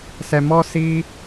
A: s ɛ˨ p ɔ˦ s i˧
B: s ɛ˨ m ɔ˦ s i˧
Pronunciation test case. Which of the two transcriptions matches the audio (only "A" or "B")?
B